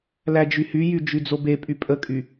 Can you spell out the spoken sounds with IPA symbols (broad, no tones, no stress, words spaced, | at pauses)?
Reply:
læd͡ʒyhyjy d͡ʒyd͡zobepʼy pʼəkʼy